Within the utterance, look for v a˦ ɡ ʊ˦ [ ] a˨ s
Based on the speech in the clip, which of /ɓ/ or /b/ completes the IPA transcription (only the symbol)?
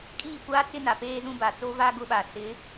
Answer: ɓ